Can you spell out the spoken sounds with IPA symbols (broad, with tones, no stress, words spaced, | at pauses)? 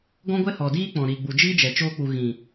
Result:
ɡɔ̃˦ɡʷɛ˦hɔ˨ diː˦k͡pɔ̃˨ɾiː˨ɡ͡bu˨ d͡ʒiː˦d͡ʒɛ˨ t͡ʃoː˧k͡pu˨ ɣĩ˨